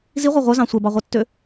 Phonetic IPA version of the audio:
ziʁʷɑ ʁʷœzɑ̃ sʷɛbɑʁʷœtːø

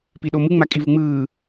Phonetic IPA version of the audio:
piɗomɯ ŋ͡makʼivɯŋ͡mɯː

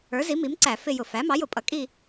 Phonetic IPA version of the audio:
ə˞˩˥zi˩˥mi˩˥m ǀæ˧˩˧fɪ˦˨jʊ˧˩˧ fæ˩˥ mɑ˩˥jʊ˧˩˧pʼʌ˩˥ kʼi˦˨

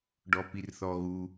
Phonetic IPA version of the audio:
ɖɔpirθɔɣu

